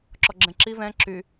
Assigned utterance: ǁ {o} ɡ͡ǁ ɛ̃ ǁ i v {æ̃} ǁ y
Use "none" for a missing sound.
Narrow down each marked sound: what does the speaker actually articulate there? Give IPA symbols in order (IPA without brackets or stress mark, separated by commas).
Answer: ɔ, ɛ̃